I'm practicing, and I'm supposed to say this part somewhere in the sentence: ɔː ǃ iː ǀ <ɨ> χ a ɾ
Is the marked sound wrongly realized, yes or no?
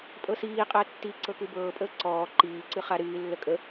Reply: no